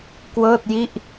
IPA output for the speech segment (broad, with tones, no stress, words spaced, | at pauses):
kwɤː˥˩t̚ji˥˩ʔ